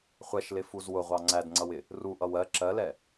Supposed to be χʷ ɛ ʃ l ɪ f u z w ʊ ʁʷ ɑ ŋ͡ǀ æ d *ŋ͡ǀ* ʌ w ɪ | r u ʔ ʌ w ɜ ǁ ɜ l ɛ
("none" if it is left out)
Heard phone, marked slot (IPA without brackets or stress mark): ŋ͡ǀ